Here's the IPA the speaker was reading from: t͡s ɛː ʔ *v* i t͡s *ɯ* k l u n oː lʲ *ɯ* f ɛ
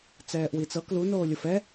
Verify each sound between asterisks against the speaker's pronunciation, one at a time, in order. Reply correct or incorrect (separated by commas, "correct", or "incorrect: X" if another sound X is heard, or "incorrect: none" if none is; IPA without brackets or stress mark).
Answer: incorrect: w, incorrect: ɤ, incorrect: ɤ